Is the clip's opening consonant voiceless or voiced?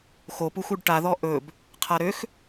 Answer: voiceless